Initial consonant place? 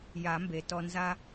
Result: palatal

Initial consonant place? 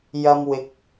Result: palatal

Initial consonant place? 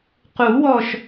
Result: uvular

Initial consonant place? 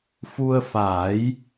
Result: labial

